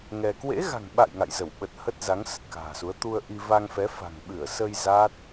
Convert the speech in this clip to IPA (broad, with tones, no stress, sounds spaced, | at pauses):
ŋ ɛ˧ k w ḛ˧˥ ɣ a̤˨˩ ŋ ɓ a̰˧˨ j ŋ a̰˧˨ j z ə˧˩ w ɓ ə˨˩ t̚ h ə˦˥ t̚ z a˨˦ ŋ s ə˨˩ t̚ k a̤ː˨˩ s u˨˦ ə̯ t̪ u˧ ə̯ ʔ i˧ v a˧ ŋ f ɛ˨˦ f a̤˨˩ ŋ ɓ ɨ˧˩ ə̯ s ə˧ j z a˦˥ t̚